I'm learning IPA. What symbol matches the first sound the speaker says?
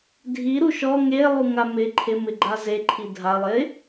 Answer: dʱ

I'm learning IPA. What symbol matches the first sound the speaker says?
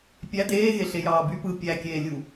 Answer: pʲ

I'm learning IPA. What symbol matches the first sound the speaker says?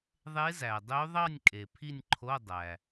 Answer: ðˤ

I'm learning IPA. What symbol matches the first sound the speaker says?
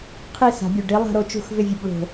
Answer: qʰ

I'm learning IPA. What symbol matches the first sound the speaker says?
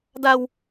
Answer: d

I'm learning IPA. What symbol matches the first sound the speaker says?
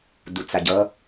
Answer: d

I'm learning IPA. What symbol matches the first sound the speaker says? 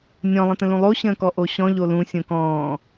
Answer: nʲ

